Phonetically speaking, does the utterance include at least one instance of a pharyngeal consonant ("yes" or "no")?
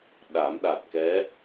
no